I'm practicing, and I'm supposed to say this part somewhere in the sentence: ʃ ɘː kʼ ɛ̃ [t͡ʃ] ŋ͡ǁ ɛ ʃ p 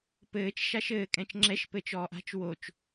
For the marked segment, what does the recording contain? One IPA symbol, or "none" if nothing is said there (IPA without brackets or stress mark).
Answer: t͡ʃ